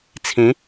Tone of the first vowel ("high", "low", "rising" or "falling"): rising